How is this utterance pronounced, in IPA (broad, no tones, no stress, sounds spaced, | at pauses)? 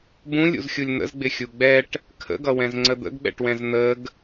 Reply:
b ũ lʲ ṵ z xʲ u lʲ n̪ ə̰ z ɡ͡b ɪ xʲ u ɡ͡b ɛ ʈ | kʰ ə̰ ɡ ʌ w ɛ̃ z ŋ͡ǀ ə d̪ ə̰ ɡ ɓ ɛ̰ ʈ w ɛ̃ z n̪ ə ɡ